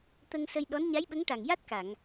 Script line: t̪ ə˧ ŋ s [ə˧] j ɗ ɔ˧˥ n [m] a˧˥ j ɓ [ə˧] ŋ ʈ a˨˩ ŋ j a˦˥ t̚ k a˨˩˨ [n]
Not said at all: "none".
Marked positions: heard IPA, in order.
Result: ə˧, ɲ, ə˧˥, ŋ

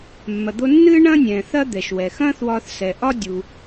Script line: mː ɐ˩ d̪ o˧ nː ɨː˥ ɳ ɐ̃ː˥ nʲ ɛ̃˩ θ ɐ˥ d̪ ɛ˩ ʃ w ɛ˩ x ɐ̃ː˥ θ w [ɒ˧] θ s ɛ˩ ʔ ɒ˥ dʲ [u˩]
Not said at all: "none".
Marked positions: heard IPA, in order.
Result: ɒ˧, u˩

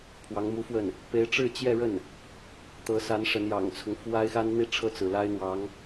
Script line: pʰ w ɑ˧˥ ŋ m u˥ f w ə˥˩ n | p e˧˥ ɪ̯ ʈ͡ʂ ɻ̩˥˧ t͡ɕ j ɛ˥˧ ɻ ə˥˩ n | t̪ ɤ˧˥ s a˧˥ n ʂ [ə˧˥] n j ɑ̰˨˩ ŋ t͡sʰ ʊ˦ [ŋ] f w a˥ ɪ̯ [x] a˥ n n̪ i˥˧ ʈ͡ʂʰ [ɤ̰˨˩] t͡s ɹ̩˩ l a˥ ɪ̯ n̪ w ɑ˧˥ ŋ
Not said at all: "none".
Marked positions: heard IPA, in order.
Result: ə˧˥, ŋ, x, ɤ˥˩

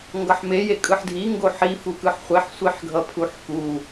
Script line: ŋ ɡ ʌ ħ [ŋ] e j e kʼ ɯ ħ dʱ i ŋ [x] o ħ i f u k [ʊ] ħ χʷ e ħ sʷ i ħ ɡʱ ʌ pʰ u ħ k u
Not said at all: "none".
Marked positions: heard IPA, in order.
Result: m, ɡ, ɯ

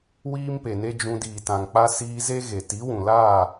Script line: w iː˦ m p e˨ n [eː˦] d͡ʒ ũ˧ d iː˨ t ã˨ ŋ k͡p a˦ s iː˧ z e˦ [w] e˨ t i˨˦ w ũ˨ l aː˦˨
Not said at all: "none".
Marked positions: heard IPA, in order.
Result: e˦, ɣ

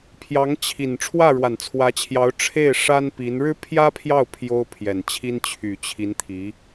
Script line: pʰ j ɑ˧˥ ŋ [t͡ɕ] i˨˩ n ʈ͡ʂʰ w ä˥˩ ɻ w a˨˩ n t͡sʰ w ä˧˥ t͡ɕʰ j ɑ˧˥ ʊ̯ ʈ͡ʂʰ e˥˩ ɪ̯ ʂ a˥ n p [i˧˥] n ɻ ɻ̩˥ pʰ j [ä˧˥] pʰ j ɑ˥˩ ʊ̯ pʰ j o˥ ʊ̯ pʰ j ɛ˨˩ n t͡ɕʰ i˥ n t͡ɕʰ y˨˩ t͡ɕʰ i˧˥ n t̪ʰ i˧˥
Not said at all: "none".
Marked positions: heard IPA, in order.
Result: t͡ɕʰ, i˧˥, ä˥

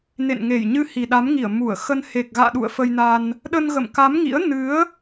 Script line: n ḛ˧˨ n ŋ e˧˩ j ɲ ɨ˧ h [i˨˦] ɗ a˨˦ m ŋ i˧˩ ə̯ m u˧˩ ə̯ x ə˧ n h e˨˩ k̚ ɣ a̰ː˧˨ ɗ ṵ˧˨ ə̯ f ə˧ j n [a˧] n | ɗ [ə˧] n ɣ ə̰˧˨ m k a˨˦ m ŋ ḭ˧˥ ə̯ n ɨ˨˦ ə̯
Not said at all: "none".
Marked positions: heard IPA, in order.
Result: i˨˩, a˧, ə˧

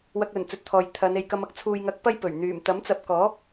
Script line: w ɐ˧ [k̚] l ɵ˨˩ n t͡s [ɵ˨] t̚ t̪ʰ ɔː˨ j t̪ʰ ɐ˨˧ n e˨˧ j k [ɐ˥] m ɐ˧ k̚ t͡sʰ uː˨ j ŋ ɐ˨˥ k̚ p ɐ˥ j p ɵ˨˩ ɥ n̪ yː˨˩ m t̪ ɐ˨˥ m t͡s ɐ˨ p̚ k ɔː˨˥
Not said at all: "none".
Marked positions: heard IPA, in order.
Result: k̚, ɵ˨, ɐ˨˧

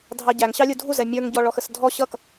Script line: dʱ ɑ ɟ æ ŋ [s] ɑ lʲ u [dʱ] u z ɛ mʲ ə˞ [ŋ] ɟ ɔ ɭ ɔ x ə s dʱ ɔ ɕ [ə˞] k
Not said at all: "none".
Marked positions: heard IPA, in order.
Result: ɕ, dʱ, ŋ, ʌ

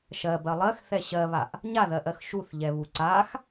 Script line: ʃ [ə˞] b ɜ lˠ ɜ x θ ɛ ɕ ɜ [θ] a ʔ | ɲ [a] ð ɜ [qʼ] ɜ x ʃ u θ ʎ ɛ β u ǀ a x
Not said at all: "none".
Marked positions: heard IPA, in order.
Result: ɜ, β, a, ʔ

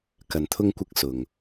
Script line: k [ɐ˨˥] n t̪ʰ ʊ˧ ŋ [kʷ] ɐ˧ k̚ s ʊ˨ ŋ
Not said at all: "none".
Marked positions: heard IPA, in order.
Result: ɐ˨, kʷ

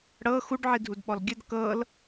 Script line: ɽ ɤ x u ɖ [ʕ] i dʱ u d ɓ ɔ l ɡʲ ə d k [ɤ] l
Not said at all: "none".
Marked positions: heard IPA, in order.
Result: ʕ, ɤ

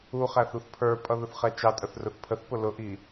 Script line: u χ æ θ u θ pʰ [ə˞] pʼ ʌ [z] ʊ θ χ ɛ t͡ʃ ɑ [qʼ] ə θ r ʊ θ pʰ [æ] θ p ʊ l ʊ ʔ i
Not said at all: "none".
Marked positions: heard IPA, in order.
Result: ə˞, ð, tʼ, ə

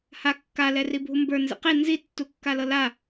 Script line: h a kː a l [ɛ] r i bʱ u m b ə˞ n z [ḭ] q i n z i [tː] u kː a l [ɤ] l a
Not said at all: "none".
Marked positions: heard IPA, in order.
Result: ɛ, ḭ, tː, ɤ

